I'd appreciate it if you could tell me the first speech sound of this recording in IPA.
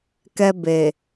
k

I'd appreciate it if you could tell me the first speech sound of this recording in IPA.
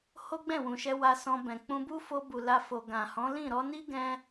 h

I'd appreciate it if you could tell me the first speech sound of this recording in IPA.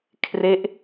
kʰ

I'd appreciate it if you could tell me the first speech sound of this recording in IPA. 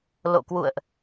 l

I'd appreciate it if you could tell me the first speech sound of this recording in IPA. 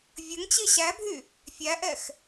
vʲ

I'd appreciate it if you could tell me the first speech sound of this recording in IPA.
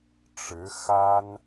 ʈ͡ʂ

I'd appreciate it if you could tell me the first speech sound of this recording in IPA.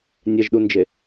nʲ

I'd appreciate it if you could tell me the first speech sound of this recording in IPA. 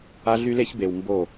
a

